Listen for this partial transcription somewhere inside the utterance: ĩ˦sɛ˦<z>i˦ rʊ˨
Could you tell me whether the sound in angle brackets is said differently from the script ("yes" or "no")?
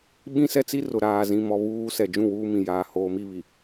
yes